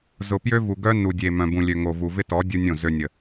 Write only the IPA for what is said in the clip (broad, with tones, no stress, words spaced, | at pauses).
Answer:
zʊ˨pjø˦vu˨ɡœ˦ nu˨dʲe˨ mœ̃˨bũ˨lʲø˨ ŋo˨vu˨vɪ˦ tɔ˨˦ dʲu˦nʲõ˦˨ zø˨ nʲə˨